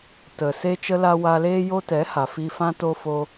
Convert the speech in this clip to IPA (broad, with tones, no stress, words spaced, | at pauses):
tə˨ se˦t͡ʃə˦la˦ wa˧leː˦ jo˧tɛ˨˦ha˨ fi˧fã˦to˦fo˦